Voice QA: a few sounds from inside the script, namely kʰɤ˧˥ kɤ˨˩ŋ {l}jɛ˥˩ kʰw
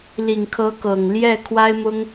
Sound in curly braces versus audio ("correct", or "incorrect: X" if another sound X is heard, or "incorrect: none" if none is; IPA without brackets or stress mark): correct